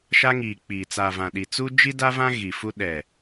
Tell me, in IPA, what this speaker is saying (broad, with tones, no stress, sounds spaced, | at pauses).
ʃ a˦ ŋ iː˨ k͡p iː˨ t͡s a˨ v ã˨ ɗ i˨ t͡s u˦ d͡ʒ i˦ d a˦ v ã˦ ɣ i˨ f u˦ ɗ ɛ˨